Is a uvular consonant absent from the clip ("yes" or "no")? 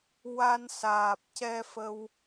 yes